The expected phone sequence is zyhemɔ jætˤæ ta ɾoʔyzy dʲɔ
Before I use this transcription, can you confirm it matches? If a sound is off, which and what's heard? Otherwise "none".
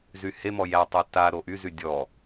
none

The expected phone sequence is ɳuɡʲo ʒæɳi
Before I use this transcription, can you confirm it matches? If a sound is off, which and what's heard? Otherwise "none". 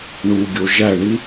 none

